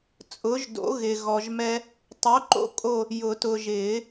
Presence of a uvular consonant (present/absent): absent